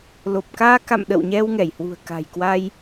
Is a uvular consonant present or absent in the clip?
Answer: absent